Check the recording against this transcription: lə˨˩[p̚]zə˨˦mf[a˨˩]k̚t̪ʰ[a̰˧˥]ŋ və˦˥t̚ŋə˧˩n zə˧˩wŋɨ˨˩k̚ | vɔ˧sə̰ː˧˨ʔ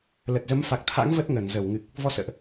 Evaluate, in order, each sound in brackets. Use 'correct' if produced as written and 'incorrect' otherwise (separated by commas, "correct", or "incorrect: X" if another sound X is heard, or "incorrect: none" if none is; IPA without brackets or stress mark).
incorrect: t̚, correct, correct